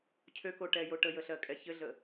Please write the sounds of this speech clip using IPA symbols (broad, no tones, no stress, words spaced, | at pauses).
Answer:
cʰøkoʈɛjo ʈəjəɬɜkʼɛ çɘɮə